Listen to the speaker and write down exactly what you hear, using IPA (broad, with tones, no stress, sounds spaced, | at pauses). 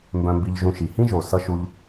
m b œ̃˧ m b i˧ ʎ ʒ ũ˧ ʃ i˨ h ĩ˦ ʒ o˨ s ʌ˧ ʃ u˦ ʎ